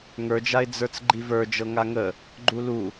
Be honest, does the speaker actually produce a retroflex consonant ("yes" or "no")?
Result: no